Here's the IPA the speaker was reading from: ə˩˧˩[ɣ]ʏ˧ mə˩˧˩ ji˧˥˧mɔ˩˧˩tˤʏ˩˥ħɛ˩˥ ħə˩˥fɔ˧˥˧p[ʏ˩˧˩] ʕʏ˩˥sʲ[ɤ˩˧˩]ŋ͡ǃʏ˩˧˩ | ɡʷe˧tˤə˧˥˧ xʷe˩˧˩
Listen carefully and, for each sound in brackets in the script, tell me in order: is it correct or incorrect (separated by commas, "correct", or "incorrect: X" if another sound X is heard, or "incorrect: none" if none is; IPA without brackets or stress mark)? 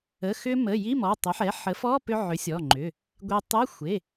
incorrect: x, incorrect: ʏ˧, incorrect: ɔ˩˧˩